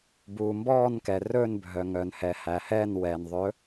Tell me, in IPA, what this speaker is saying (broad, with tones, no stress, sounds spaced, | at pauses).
b uː˩ m b ɔː˦˨ n k ɛ˩ r ɵː˦˨ n bʱ œ˩ ŋ œ˩ n h ɛ˩ h æ˩ h ɛː˦˨ n w ɛː˩ n ðˤ ɵ˨˥